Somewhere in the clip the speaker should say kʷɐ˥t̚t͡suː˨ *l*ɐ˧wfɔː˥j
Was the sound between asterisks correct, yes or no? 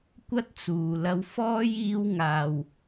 yes